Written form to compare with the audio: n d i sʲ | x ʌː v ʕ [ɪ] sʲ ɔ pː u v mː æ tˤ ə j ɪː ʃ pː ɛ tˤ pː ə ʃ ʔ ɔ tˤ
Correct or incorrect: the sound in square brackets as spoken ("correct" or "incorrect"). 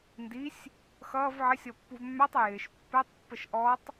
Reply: correct